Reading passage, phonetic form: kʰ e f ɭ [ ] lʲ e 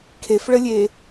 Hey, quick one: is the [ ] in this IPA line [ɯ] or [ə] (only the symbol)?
ə